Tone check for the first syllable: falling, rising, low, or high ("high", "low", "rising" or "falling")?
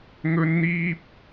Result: high